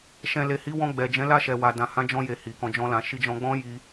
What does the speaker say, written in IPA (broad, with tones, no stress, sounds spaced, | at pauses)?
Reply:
ʃ ɛ̃˨ l e˨ h i˨˦ w ɔ̃˧ ɡ͡b ɛ˨ d͡ʒ ɛ̃˨˦ l a˦˨ ʃ ɛ˨ w a˨ d ã˨ h ã˨˦ d͡ʒ ɔ̃˧ j e˨ h i˨ k ɔ̃˧ d͡ʒ ɔ̃˦ l ã˧ ʃ i˧ d͡ʒ ɔ̃˧ ɡ͡b ɔ̃˦ j i˧